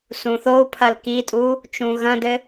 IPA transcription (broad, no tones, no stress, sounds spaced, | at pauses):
s ũ θ o u̯ pʰ ɐ l k i tʼ u | t͡ʃ ũ ɣ ɐ̃ d ɘ